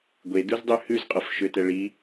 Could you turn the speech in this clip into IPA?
ɡʷ e d u z dˤ ʉ h ʉ z qʼ ɔ f ʃ ø t ɛ ɭ i

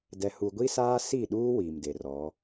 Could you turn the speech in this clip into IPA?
d ɛ˨ h u˨ ɡʷ i˦ s aː˦ s i˦˨ ɗ uː˦ w iː˨ m d e˨ r ɔ˨˦

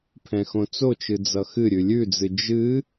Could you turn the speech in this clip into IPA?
pʰ ɛ̃ x õ t͡s o t͡ʃ ɨ d͡z ʌ x ɨ ɾʲ ʉ lʲ ʉ d͡z ɨ d͡ʒ ɨ

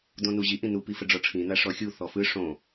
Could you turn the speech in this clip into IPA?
d õ n u ʑ i ʔ ĩ n u p i f ə ɖ͡ʐ ɔ ʈ͡ʂʰ ĩ n a ʂ ɔ xʲ u θ ɔ f ɯ ʂ õ

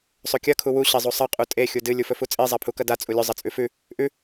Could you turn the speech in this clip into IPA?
sˤ ɵ kʲ ɐ kʰ u w u ɕ e zˤ u sˤ ɐ qʼ u tʼ e xʲ u d ɨ lʲ u f ɵ f u t͡sʼ i zˤ a pʰ u k ɐ d a t͡sʼ u lʲ ɵ zˤ ɐ t͡sʼ ʉ f ʉ | ʔ ʉ

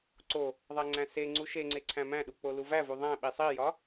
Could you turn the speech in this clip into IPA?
ǀ o | ðˤ æ ŋ͡ǀ æ̃ s e ŋ͡ǀ u ʃ e ŋ͡ǀ e ǀʰ æ̃ m æ̃ ɗ u k͡p o l u v æ v u ðˤ æ̃ ɓ i sˤ i j ɒ

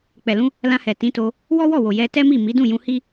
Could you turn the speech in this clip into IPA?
k͡p ɛ˨ l ũ˧ | l ã˧ h ɛ˨ t ĩ˨˦ t o˧ | w ɔ˦ w ɔ˦˨ w o˨ j ɛ˧ t ɛ˦ m i˦˨ m i˨˦ d ũ˦˨ j ũ˧ h i˦

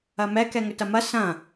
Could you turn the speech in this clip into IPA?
ɐ m ɛ k ɛ ŋ ʏ t ɐ m ɐ s ɐ̃

